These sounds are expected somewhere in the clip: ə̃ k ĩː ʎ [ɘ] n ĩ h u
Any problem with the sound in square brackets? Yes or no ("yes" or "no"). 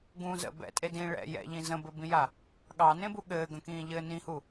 yes